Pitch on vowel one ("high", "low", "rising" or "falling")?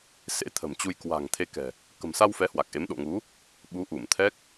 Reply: rising